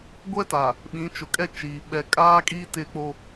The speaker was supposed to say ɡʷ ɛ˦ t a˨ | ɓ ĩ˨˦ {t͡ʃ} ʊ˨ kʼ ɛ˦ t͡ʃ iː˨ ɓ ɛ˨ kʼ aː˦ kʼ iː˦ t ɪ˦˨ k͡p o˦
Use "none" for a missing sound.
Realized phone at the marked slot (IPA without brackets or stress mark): t͡ʃ